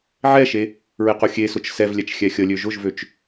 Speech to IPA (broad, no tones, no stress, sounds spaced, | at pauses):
ʕ ɛ ʃ e | ɹ ɪ q ʊ xʲ e s ʊ t͡ʃ s ɛ v lʲ ɛ t͡ʃ xʲ ɛ xʲ ə lʲ ø ʒ ʊ ʒ v ø t͡ʃ